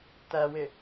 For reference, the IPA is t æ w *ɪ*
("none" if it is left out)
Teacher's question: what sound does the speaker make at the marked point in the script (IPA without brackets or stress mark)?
ɪ